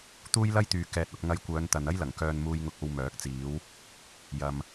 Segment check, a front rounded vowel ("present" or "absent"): present